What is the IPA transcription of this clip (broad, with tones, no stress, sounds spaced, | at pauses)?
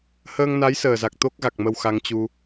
h əː˧ ŋ n a˨˦ j s əː˨˩ z a˨˩ k̚ t̪ o˦˥ k̚ ɣ a˨˩ k̚ m ə˧ w x a˧ ŋ t͡ɕ u˧